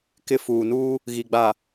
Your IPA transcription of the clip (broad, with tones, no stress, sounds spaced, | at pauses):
k ɪ˦ f uː˨ n uː˦ | ɣ i˨ ɡ͡b a˨